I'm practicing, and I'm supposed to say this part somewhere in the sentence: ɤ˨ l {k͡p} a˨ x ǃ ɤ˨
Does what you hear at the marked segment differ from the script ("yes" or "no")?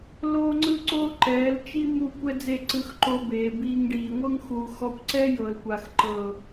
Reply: yes